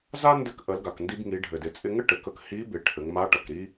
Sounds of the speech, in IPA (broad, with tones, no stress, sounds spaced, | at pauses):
z a˥ n d ɘ˧ k ʔ ə˩˧ l ɡ a˩ k n d i˧ b ŋ i˩˧ ɖʱ ɘ˩ d ɪ˩˧ t͡sʼ ɪ˧ ŋ ɘ˥ ʈ ɘ˩ k ə˧ k h i˧˥ b ɪ˩˧ ʈʰ ɘ˩˧ ŋ m a˧˥ ʈ ʌ˩ k ɾ i˥